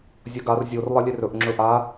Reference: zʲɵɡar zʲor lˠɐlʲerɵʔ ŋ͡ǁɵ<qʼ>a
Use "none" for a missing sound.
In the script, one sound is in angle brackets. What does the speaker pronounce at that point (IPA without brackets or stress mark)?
ʔ